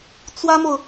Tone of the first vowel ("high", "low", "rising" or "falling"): high